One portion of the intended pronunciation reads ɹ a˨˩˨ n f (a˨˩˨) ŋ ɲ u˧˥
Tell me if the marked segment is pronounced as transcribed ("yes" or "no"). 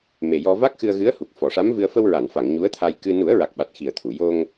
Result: yes